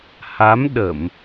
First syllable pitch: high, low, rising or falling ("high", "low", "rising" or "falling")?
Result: rising